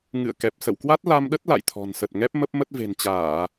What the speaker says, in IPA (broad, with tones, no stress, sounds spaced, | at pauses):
ŋ ɨ̰˧˨ ə̯ k ɛ˨˩ p̚ s ə̰˧˨ w k w a˦˥ t̚ l a˧ m ɗ ə˦˥ t̚ l a̰˧˨ j t̪ʰ ɔ̤˨˩ n s ə˨˩ t̚ ŋ ɛ˦˥ p̚ m ə˦˥ p̚ m ə˦˥ t̚ v e̤˨˩ n t͡ɕ aː˧˩˨